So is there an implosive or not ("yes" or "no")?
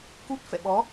yes